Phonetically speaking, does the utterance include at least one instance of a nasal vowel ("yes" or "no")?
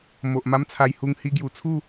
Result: no